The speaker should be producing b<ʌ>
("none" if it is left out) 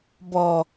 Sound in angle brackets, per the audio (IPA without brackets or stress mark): ɔ